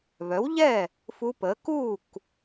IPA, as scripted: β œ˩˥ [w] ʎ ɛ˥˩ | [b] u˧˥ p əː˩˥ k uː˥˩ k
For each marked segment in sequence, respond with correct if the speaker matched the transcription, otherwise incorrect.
correct, incorrect

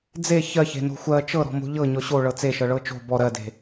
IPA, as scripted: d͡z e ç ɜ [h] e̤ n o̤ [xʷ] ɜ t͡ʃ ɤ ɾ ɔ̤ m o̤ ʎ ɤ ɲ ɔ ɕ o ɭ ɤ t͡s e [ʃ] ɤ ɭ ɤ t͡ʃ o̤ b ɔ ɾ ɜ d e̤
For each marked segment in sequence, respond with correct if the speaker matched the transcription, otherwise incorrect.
incorrect, correct, correct

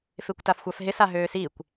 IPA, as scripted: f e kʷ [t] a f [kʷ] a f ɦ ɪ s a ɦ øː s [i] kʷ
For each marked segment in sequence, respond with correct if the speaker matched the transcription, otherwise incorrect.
correct, incorrect, correct

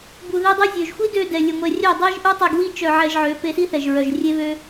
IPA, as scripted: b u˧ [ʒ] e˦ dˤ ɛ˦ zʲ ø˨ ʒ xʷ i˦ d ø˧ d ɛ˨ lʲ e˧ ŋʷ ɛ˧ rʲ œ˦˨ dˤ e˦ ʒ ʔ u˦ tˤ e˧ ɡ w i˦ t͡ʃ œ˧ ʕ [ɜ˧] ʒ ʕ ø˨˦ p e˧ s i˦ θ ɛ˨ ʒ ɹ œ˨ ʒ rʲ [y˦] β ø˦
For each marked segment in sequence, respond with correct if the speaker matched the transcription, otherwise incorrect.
incorrect, incorrect, incorrect

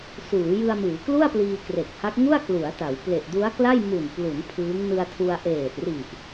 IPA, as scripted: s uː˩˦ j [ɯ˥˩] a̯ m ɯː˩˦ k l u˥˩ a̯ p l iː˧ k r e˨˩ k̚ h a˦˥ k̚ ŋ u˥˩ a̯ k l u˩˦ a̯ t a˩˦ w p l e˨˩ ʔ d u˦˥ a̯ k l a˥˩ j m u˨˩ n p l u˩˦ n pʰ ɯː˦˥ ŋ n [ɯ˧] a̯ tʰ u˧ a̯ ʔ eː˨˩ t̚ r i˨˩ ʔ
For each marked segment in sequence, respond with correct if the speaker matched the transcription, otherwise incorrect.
incorrect, correct

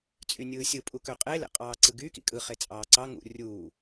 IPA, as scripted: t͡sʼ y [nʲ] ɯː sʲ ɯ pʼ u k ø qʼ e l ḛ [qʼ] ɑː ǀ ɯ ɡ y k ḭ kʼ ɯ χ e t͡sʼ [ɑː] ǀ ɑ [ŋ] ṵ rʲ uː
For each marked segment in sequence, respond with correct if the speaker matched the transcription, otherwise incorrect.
correct, correct, correct, correct

